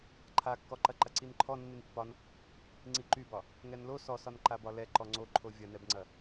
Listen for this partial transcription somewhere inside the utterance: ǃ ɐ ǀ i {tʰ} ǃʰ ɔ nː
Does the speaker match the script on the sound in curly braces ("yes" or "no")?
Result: no